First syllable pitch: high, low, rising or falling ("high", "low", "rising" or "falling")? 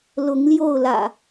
rising